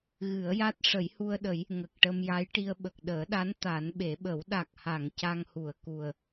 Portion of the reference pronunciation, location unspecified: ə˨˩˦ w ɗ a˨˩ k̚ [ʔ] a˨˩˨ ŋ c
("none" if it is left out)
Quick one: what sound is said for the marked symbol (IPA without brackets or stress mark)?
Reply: h